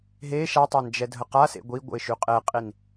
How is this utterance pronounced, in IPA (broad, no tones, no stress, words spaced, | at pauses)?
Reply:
ɦe ʃatˤand͡ʒɛdʱə qasḛ ɡʷiɡʷə̰ɪ̯ʃy qʼeqʼin